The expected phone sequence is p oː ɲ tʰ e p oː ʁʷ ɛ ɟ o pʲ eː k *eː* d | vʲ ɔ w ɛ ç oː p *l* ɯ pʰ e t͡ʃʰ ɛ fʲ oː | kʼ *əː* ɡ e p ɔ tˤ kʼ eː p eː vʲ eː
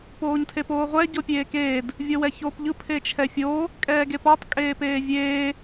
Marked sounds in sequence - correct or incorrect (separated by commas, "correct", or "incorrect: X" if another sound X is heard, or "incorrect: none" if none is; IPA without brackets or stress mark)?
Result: correct, incorrect: ʎ, incorrect: ɛː